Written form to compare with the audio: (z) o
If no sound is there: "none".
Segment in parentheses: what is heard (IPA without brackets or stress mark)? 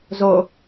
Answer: z